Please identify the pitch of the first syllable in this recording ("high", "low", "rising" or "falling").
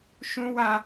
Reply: high